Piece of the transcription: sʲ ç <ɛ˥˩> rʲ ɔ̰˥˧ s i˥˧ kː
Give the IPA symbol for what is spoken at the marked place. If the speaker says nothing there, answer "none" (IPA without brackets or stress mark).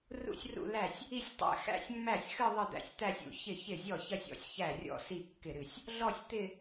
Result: æ˥˩